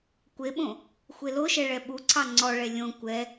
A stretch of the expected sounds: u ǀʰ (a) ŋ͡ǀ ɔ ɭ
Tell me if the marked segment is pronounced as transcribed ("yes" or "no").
no